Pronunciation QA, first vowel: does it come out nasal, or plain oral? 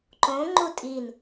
nasal